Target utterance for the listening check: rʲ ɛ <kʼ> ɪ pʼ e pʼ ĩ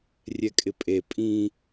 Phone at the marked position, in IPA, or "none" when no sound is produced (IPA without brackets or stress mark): kʼ